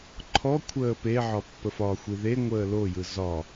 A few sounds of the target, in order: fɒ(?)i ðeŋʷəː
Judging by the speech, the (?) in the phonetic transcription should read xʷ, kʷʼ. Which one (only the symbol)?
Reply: xʷ